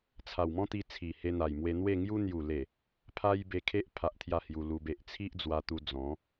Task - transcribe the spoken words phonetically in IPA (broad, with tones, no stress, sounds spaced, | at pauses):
t͡sʰ a˨˩ w m ɔ̃˦ t̪ i˧ t͡sʰ i˨˩ h e˧ n̪ a˨˩ j m w e˧ n̪ w e˥˧ ŋ j u˦ n̪ j u˨˩ l e˨˩ | pʰ a˦ j b e˧ kʰ e˦ ʔ pʰ a˦ ʔ t̪ʰ j a˥˧ h j u˧ l u˧ b e˨ ʔ t͡sʰ i˦ ʔ d͡z w a˧ t̪ u˧ d͡z ɔ̃˨˦